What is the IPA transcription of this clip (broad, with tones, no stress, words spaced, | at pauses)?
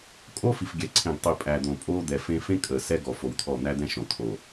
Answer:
kʼo˦ fi˨fɡʲɛ˨ǀʰẽ˨ɡ tˤi˨ pʼæ˨d̪õ˨ pʼoː˦d̪ɛ˨fẽ˦ fẽ˦ kʼəː˨sɛ˦ɡɔ˨ fo˨wt̪ʰɔ˦˨ n̪æ˦d̪ɛ̃˦ ʃõ˨t̪ʰo˨